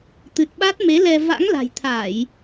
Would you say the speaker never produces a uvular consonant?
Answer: yes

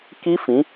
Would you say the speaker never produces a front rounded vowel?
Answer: yes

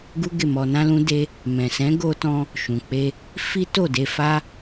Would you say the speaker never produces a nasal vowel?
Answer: no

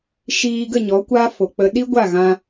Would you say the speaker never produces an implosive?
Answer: no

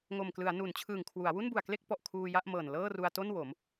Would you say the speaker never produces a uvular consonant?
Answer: yes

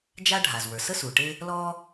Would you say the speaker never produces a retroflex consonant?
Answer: no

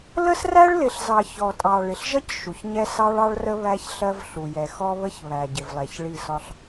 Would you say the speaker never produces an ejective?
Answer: no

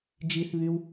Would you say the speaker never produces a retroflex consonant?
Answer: yes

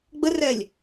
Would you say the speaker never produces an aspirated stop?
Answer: yes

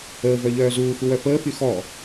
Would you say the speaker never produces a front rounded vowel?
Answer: no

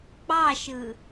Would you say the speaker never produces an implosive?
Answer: yes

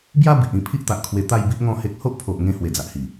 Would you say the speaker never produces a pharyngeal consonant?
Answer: yes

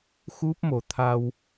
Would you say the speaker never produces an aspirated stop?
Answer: no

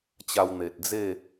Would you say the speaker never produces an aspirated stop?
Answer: yes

